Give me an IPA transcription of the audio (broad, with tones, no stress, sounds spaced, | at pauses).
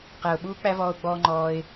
q æ˨ ʊ̯ ɓ uː˦ k͡p æ˦ v ɔː˧ ʊ̯ ɡ͡b ɔː˧ ŋ͡ǃ ɔː˧ ɪ̯